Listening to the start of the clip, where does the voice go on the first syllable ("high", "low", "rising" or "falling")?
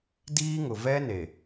high